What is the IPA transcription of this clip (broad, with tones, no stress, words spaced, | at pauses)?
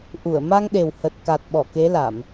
ʔu˧˩ə̯ ma˧ŋɗe˨˩w hə˨˩t̚ka˨˩t̚ɓɔ˧˩ ke˨˦la˧˩˨m